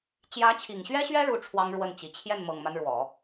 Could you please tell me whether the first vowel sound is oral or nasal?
oral